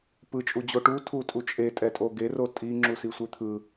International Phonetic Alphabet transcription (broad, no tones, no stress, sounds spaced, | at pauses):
p ɯ t͡ʃʼ u d͡ʑ o ʈ u tʰ u tʼ u t͡ʃʼ e tʼ ɛ tʼ o ɡ e r o tʼ i ŋ͡ǁ u s i sʷ e t̪ʰ ɯ